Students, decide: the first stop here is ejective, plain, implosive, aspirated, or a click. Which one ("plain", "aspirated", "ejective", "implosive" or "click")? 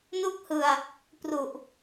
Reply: plain